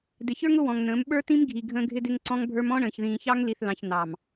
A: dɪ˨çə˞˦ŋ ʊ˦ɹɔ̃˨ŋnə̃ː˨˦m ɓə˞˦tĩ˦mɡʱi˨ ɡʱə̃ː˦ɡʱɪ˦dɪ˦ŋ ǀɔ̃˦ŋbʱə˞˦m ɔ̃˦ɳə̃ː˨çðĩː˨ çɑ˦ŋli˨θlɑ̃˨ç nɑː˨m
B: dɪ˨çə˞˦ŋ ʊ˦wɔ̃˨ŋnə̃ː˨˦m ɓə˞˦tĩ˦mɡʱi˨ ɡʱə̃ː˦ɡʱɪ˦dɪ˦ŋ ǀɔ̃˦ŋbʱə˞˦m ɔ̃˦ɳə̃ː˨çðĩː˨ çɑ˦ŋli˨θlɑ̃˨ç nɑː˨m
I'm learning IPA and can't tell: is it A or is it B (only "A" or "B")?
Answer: B